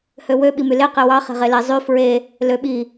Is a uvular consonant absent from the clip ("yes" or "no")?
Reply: no